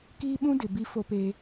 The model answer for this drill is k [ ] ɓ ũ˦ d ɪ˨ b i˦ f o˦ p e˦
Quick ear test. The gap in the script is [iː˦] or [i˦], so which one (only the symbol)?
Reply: iː˦